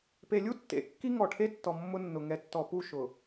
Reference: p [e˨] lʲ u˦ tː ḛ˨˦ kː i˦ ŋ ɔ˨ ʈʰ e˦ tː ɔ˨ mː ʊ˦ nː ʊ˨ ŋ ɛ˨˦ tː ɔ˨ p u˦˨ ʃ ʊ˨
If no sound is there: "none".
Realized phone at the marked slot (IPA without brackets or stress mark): e˨